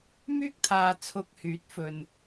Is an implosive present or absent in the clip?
absent